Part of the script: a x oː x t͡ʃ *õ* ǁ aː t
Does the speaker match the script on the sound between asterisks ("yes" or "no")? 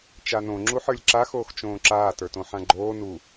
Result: no